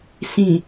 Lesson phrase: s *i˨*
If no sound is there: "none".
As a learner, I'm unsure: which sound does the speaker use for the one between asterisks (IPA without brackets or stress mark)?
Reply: ĩ˨